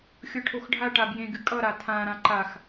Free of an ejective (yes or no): no